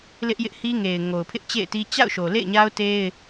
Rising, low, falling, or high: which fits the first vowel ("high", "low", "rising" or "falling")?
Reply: high